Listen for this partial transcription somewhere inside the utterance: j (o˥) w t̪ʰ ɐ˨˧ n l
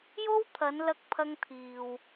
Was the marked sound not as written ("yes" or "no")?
no